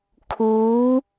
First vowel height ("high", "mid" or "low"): high